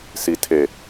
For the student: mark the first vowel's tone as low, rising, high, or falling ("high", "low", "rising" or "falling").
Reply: low